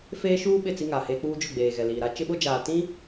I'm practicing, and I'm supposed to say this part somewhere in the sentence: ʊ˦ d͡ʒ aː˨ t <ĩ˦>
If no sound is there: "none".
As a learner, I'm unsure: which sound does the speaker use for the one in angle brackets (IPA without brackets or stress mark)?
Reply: ĩ˦